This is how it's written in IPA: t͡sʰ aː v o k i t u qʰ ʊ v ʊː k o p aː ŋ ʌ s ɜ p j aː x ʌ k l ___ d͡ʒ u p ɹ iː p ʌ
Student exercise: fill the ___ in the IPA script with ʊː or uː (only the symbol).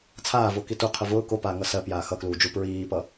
uː